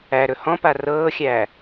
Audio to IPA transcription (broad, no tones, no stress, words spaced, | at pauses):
æɾɵ hɔ̃pa rɤːxʲæː